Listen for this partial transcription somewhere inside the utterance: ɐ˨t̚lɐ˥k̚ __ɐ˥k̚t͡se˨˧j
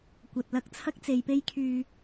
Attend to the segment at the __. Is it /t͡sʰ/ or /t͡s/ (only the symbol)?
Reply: t͡sʰ